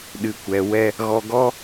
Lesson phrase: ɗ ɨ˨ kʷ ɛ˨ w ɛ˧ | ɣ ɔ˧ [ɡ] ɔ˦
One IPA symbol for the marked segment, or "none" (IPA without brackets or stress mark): ɡ